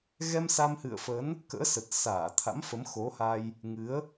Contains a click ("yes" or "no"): no